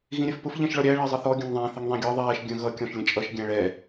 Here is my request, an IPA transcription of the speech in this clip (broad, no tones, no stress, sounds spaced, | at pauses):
ɣ ĩ ɾʲ ɛ f p ʊ f ʎ ɛ̃ ʃ ɭ ɒ ɾʲ æ ɭ ɜ zˤ ə θ ɔ ɡʲ ə̃ ŋ ðˤ æ̃ θ ɪ ŋ ðˤ ĩ ɡʲ ɒ ðˤ ɛː ʃ ɡʲ ə̃ ɣ ʌ kʲ ɔ̃ ʃ lʲ ə̃ t͡ʃʼ ʌ ʃ ɡʲ æ̃ ɭ ɛ